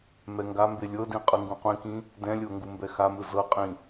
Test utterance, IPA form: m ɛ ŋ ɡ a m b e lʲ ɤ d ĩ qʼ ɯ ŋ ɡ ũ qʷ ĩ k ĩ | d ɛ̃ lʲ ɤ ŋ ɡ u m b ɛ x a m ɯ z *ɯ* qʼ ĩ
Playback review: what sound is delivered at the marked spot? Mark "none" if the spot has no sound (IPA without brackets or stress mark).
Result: ɤ